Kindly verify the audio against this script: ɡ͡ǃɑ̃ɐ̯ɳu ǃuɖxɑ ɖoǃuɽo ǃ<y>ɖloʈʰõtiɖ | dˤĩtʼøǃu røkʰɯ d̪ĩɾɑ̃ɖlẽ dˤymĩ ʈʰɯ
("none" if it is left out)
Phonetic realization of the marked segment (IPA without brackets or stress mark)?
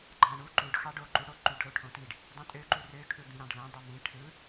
y